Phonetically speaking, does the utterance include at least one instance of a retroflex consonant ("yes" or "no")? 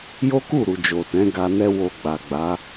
no